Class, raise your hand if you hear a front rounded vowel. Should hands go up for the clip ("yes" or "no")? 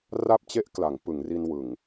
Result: no